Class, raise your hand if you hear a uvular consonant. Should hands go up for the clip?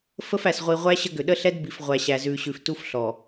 yes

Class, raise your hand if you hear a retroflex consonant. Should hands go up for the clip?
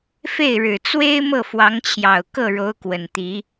yes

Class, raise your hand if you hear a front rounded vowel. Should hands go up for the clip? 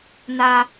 no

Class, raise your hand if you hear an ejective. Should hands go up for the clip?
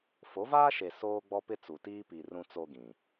no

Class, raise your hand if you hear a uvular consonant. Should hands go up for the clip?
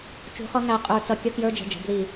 yes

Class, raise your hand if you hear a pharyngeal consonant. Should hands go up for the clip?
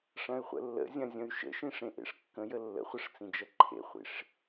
no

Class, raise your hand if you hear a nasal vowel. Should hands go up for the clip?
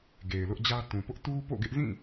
yes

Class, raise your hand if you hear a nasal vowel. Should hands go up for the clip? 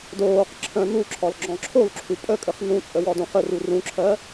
yes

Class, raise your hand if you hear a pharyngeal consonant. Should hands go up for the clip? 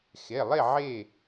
yes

